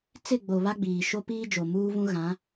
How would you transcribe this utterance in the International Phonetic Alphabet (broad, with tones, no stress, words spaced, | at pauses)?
t͡sɪ˦˨ɡ͡bo˨ βa˦ɡ͡biː˨ ʃo˦piː˦d͡ʒo˨ muː˦vũ˦ ɣã˨˦